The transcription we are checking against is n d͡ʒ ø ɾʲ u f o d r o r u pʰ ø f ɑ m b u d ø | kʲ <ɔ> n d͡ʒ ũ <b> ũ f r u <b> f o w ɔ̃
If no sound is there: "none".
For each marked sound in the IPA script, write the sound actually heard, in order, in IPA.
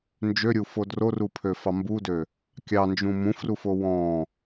ɑ, m, none

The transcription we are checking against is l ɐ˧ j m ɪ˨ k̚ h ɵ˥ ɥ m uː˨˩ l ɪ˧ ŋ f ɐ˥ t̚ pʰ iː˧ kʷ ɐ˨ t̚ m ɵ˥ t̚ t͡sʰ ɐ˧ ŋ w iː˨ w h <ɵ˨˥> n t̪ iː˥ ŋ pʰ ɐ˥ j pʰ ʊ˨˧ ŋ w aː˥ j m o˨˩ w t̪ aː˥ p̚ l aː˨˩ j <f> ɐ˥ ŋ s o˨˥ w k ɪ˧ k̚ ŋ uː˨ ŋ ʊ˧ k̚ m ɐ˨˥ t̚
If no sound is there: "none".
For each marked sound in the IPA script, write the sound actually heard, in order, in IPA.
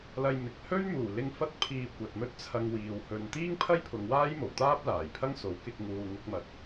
ɵ˨, pʰ

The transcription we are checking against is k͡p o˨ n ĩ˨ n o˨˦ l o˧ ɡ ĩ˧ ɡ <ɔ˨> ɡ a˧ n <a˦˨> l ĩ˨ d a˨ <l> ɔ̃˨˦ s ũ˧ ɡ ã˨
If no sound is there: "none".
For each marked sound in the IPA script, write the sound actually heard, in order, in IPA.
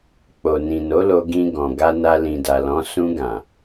ɔ̃˨, a˧, l

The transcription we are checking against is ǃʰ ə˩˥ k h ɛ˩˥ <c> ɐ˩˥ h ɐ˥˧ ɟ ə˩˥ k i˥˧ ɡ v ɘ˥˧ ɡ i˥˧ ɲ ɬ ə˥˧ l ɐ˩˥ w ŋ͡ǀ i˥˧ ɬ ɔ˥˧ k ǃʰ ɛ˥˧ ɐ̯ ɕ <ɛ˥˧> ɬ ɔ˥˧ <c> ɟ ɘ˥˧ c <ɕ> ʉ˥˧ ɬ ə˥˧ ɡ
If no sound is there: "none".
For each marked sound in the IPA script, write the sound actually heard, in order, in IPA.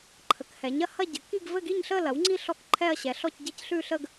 ɲ, ɛ˩˥, c, ɬ

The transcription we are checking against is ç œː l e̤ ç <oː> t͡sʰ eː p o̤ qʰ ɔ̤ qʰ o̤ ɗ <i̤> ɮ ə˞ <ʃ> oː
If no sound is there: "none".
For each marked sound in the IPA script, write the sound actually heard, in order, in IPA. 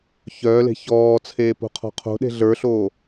ɔː, e̤, ɬ

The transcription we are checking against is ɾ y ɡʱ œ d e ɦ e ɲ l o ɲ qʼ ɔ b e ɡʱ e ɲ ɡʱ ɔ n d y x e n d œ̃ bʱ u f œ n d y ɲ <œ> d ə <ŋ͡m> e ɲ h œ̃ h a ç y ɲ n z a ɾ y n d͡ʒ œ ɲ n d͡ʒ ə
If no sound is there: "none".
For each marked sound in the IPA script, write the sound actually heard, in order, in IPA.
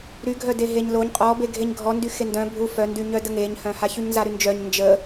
œ, ŋ

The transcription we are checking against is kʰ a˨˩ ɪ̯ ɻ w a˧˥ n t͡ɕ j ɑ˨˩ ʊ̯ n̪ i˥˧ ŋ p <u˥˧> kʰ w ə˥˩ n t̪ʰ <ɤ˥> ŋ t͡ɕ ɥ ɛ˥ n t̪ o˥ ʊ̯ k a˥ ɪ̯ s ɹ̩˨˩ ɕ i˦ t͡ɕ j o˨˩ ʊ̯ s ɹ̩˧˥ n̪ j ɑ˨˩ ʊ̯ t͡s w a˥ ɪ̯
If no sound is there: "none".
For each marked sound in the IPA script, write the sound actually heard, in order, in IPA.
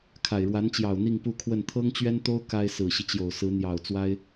u˥˧, ɤ˥

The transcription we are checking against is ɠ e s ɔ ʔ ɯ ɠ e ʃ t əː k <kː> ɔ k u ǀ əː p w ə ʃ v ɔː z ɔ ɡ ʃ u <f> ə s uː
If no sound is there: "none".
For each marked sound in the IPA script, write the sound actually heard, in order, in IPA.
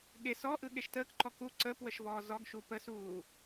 ǃ, p

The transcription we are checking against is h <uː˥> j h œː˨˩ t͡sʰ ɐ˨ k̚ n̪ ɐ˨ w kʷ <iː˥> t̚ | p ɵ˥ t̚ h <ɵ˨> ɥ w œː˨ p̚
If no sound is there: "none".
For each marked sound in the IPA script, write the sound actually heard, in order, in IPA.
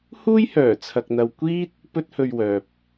uː˥, iː˥, ɵ˧

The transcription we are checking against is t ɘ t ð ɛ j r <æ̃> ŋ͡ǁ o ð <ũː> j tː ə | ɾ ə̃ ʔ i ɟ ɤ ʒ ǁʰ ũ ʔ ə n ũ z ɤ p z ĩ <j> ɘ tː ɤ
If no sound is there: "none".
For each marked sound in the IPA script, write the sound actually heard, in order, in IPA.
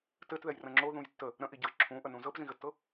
ə̃, ũ, ɣ

